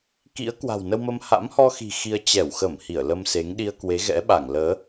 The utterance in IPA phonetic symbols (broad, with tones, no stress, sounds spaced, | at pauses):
k ḭ˧˥ ə̯ k w a̤˨˩ w n ə˧ w m ə˧ m h a̰˧˥ m h ɔ˧ x i̤˨˩ x i˧ ə̯ t͡ɕ ɛ˧˩ w x ə˧˩ m h i˧˩ ə̯ l ə˧ m s e˨˦ ŋ ɗ i˧ ə̯ k w e˨˦ ɣ ɛ̰˧˥ ɓ a˧˩ ŋ l əː˨˦